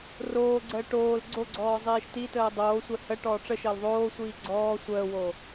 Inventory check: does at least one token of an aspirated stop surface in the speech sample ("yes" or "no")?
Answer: no